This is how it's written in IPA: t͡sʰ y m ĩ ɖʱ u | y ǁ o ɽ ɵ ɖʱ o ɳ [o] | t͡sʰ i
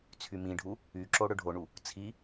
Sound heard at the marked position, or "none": u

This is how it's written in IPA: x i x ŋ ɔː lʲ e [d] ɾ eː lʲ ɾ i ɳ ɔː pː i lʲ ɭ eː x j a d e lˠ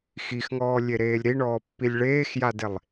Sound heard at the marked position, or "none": none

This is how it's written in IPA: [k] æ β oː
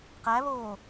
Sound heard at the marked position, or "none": q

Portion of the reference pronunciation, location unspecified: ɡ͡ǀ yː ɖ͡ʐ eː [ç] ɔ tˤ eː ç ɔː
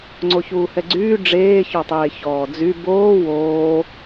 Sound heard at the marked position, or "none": ç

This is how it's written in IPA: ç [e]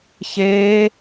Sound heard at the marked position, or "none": eː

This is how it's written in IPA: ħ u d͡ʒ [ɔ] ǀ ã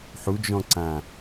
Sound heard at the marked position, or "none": ɔ̃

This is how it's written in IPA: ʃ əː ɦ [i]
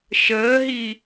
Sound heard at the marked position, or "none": i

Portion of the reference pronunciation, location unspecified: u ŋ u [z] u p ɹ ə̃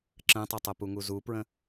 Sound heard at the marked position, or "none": z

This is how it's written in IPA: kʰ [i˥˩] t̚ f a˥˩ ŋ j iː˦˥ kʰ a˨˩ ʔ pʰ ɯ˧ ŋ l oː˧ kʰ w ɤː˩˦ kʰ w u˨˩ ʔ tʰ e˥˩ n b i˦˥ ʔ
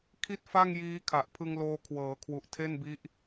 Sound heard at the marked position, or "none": i˥˩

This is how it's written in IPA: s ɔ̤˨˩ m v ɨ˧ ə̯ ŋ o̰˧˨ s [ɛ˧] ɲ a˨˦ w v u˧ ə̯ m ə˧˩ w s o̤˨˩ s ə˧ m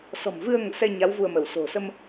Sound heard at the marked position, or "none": ɛ˧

